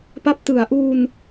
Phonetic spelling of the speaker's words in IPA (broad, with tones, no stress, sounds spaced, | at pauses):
p a˦˥ p̚ t ɯ˩˦ a̯ ʔ u˧ n